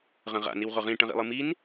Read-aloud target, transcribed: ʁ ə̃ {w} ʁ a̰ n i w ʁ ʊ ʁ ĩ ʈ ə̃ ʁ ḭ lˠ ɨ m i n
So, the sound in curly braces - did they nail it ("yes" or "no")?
no